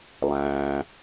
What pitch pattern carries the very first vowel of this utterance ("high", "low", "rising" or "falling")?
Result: low